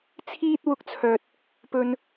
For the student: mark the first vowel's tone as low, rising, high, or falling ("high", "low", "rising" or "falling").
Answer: high